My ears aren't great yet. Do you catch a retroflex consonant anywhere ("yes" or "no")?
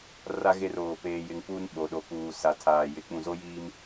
no